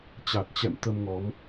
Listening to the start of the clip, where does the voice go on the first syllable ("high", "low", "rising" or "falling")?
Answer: low